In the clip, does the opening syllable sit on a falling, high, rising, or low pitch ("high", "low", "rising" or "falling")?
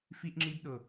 high